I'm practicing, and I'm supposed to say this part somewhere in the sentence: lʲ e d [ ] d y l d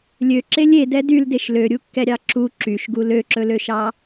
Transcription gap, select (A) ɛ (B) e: A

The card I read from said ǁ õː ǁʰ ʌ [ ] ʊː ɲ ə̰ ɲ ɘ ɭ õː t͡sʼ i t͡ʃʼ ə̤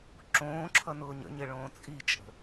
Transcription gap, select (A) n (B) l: A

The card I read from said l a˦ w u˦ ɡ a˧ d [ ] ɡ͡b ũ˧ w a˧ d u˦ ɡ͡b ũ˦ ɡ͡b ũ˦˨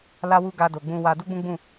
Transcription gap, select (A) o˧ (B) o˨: B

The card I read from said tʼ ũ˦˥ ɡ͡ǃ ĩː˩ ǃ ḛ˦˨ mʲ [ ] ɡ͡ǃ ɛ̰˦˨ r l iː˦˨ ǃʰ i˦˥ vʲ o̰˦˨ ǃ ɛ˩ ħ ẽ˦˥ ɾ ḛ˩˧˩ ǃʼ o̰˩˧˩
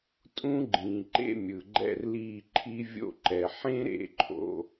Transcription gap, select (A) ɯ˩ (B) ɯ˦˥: A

